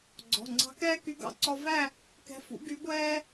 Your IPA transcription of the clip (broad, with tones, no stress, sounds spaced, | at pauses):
ɡ͡ǀ ɔ̤˩˧˩ ŋ͡ǀ ɑ̤˧˥ k ɛː˥ k y˧˥ ɡ ɑ̰˧ ǀ ɔ˧ v æ˥˧ | k ɛ̤˧˥ f ṵ˧˥ ɡ y˧˥ ɡʷ ɛː˥